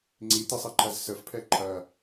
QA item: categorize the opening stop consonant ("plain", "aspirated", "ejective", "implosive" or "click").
click